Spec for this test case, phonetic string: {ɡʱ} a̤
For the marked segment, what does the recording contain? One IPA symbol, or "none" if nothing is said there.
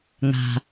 ŋ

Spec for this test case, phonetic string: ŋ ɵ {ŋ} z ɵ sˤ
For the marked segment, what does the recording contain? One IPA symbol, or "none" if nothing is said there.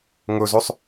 none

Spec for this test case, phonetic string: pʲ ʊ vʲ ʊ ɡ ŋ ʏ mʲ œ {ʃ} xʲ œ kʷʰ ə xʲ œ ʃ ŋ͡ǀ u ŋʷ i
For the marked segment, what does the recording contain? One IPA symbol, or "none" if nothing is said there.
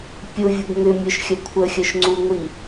ʃ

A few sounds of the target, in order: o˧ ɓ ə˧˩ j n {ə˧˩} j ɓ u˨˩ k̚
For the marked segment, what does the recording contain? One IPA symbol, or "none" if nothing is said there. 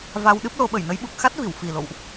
ə˨˦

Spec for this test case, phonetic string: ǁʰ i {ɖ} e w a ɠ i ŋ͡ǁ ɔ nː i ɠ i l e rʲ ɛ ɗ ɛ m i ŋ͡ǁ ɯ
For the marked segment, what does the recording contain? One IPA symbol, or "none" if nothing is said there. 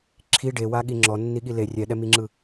ɖ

